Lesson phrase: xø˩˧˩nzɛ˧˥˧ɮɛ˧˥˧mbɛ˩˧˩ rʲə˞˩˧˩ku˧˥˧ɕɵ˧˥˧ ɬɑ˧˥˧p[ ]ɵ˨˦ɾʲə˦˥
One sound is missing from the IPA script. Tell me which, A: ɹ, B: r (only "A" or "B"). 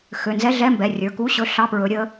A